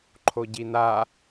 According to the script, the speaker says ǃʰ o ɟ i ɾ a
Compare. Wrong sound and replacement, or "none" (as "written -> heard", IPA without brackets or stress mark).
ɾ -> n